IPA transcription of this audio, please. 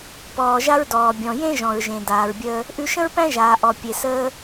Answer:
p ɔː˩ ʒ a˥ ɹ d ɔː˩ bʲ ɔ̃˩ j ẽ˥ ʒ ɔ̃˩ ɹ ʒ ẽ˩ d aː˩ ɹ bʲ əː˧ | ʔ ʉ˧ ʃ ə̃˥ ɹ p æ̃˥ ʒ aː˩ ʔ ɔ˩ pʲ e˩ s əː˧

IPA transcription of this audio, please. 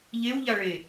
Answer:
ʎ e w ʎ a ɭ e

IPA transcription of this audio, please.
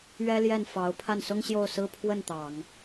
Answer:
ɥ ɛ˥ l j ɛ˥˩ n f ɑ˧˥ ʊ̯ pʰ a˥˩ n s ʊ˥ ŋ ɕ j o˥˩ ʊ̯ s ɹ̩˥ pʰ w ə˥˩ n t̪ ɑ˨˩˦ ŋ

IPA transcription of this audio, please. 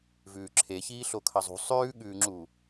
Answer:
v ʉː ǁʰ e ç iː ɬ o kʰ ɐ zˤ ṳ sˤ ʉː ɠ ʉː ŋ͡ǁ u

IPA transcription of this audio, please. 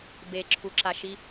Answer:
b e ǁʰ u ǁ a ʃ i

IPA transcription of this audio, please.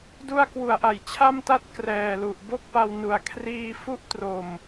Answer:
d u˧ a̯ k w u˩˦ a̯ ʔ a˩˦ j t͡ɕʰ a˥˩ m t a˥˩ t̚ k r ɛː˨˩ l u˨˩ ʔ b o˥˩ k̚ p a˧ w n u˨˩ a̯ kʰ r iː˧ f u˥˩ ʔ t r o˧ m

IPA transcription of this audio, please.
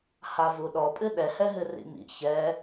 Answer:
h a v u ɗ ɔ pʼ ɨ ɗ ɛ h ɛ ɦ ɨ r ḭ m ḭ ç ɛ

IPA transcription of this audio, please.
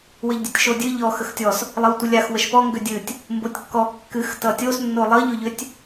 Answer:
w ə ʎ dʲ ɘ tʲ ʃ o dʲ ɨ ʎ ɔ x ə x tʲ ɔ s | lˠ ʌ w tʷ ɨ lʲ a x w ə ʃ p ɔ ŋ ɡ ʏ dʲ ɨ tʲ | m b o tʲ kː ɔ kː ɨ x t ʌ tʲ o s nː o lˠ ʌ ʎ o ʎ ʏ tʲ

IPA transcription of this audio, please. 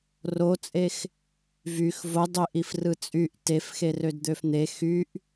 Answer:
r o t͡sʼ e x | v y x v o dˤ ø ʔ i f r ɯ t͡sʼ y ʔ t e f x e r ø d d̪ ø f n̪ e x y ʔ

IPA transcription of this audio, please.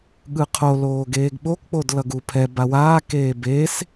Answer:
ɠ ɯ qʰ o l oː ɡ eː ɡ ɓ o k k͡p o d l ʌ ɡ u pʰ ɛ b a w aː k eː b e s

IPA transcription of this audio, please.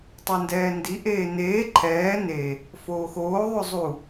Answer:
tˤ o n d ɛː n d i ʔ eː n eː ǃʰ ɛː n e | f oː x oː ðˤ o zˤ u

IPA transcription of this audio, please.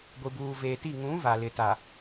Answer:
ɡʷ i˨ b uː˨ v eː˨ t i˦˨ ŋ ũ˨˦ v a˨ l ɪ˨ t a˨

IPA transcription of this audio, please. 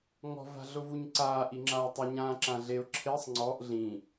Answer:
ŋ ɔ̤ v a̤ ɮ ʊ v u ɲ ǀ aː ʔ i ŋ͡ǁ aː tˤ ʊ ɲ ãː ǁ ã ɮ e ʊ̯ ǁʰ e sˤ ŋ͡ǀ ɔ ʔ ɮ ĩ

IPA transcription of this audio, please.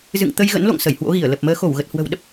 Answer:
z ɨ̰˧˨ ŋ t̪ ə˧ j ɣ ə̰˧˥ n l o̰˧˨ ŋ s ə˧˩ j h w o̰˧˥ ɣ i˧˩ ə̯ l ə˨˩ p̚ m əː˨˦ x o˧˩ w ɣ ə˨˩ t̚ h w ə̤˨˩ w ɗ ə˦˥ p̚

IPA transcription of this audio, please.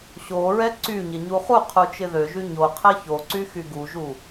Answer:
ɕ o ɹ ɛ ǀ y ɲ ɪ ɲ u χ u qʰ u t͡ʃ ɪ ð ø ʒ y ɲ o qʰ ɛ ç o ǀ y x y ɡ u ʒ u

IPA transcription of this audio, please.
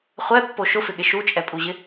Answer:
χʷ ɛ pː o ʃ ʊ f ɪ ɠ ɪ ʃ u t͡ʃʼ ɛ pʼ u ʑ ɪ

